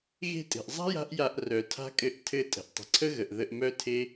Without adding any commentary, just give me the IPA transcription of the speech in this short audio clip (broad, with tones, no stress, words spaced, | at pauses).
ɣe̤˧tʼe̤˩ʔzˤa̤˥ ja̤˥ʔja˧ʔ rœ˩tʰa̤˥ kʼɘ˧ʔ tʰɘ˧ tʼə̤˩ʔtˤə̤˩ǀʰə˥ɣə˩ʔ ðə˧ʔmœ˥tʰe˥